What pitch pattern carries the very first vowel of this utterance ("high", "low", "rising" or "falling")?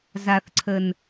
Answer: low